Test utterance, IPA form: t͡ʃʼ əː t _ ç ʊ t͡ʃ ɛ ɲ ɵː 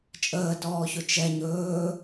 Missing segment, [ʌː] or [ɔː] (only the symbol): ɔː